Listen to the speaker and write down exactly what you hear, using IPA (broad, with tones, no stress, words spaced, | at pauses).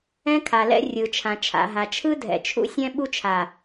ɛ̃˦kʰa˨lɛ̰˦ rʲɯ˨t͡ʃʰã˨t͡ʃʰa̰˨ ɦa˨ t͡ʃʰɯ˦dʱɛ̰˨t͡ʃʰṵ˦sʲɛ̃˦ ɓu˦t͡ʃʰa˨